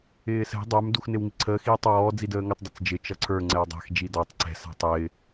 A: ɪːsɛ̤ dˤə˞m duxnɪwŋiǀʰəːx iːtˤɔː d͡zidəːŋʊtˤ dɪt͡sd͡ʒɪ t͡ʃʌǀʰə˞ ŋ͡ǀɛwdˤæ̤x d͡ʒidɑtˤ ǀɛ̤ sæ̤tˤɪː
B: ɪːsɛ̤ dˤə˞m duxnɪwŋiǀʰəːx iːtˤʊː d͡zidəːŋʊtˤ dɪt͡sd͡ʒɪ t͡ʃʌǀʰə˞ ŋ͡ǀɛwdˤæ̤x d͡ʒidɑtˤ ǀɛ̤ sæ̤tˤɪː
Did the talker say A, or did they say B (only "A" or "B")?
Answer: A